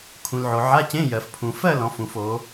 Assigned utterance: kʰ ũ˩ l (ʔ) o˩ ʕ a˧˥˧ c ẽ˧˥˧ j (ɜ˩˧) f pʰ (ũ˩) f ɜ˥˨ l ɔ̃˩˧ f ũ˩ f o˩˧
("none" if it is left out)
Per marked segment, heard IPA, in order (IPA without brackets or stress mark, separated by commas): ʕ, ɜ˩, ũ˩